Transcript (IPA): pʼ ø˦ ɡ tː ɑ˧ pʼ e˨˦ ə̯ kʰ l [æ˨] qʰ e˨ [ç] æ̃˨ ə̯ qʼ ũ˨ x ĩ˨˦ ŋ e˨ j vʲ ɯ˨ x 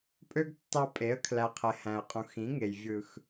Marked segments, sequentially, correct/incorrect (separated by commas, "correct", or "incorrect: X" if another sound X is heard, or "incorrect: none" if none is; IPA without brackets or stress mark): correct, incorrect: h